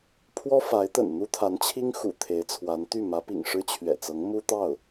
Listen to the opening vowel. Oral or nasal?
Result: oral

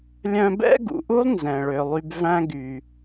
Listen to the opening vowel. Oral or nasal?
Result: nasal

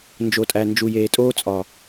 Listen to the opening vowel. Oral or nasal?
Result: oral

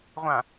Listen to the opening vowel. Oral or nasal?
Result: nasal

